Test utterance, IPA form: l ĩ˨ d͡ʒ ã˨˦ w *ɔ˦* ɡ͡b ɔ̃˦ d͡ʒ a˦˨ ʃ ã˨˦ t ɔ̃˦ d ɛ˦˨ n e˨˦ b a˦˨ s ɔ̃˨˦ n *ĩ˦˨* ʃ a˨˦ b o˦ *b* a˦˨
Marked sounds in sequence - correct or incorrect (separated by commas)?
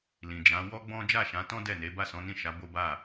correct, correct, correct